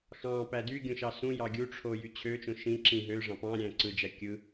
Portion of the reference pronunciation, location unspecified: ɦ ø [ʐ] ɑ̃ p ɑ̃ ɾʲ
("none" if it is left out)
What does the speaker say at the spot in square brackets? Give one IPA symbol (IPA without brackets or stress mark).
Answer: ʐ